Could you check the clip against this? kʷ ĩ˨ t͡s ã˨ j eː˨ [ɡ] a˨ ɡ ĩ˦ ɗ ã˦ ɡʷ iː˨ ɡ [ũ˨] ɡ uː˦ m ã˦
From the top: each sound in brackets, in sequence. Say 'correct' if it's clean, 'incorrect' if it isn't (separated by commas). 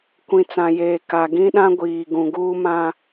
incorrect, correct